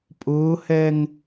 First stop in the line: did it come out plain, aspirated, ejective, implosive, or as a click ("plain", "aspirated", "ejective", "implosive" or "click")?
ejective